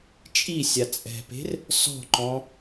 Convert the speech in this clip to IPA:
t͡ʃʼisʲa t͡sʼɛ̤pe̤r | sɔ̤ǃɔ̃

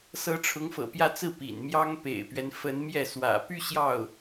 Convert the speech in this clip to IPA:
sɤ˧˥ʈ͡ʂʰʊ˧˥ŋfɤ̰˨˩pjä˥˧ t͡sɹ̩˥˩pḭ˨˩nmjɑ˥ŋ pḛ˨˩ɪ̯pɥɛ˦nfə˧˥n mjɛ˥˩ swä̰˨˩py˥˧ ɕjɑ˥˩ʊ̯

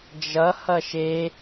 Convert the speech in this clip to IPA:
d͡ʒʌ hʌʃe

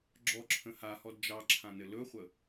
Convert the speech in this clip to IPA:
ɡ͡ǁɔǁʰə̃ hahɔd d͡ʒɑǁʰãnɘ lɵχʷə

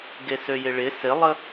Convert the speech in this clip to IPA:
ɡesøjɪɭɪ sɪlˠə

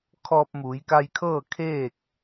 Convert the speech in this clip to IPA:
kʰɔː˧p̚muː˩˧jka˧jkʰɤː˥˨ kʰeː˥˨k̚

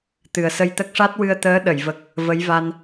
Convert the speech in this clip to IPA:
t̪ɨ˨˩ə̯sə˧jt̪ə˦˥k̚ ʂa˦˥t̚wɨ˧ə̯t̪əː˧˥ ɗə˨˩˨jvə˨˩k̚ | və˧˥jva˧n

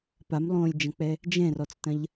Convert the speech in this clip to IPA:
pamlˠõːlʲd͡ʒɐ̃k͡pɛ | d͡ʒɛ̃rɔt͡stɐ̃ʎ

